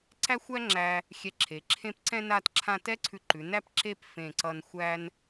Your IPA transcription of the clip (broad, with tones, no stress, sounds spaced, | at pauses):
ǀ æ˥ xʷ æ˥ ŋ͡ǁ æ˧ | xʲ ɛ˧ ǁʰ e˩˧ ǁʰ ẽ˥˧ p ǀ ɛ̃˥ n a˥˧ t ǁʰ ã˥˧ t ɛ˥ ǀʰ ʉ˧ ǃ ʉ˩˧ n æ˥ p ǁ e˥˧ p f ẽ˧˩ ǀ ʌ˧ n xʷ æ˥ n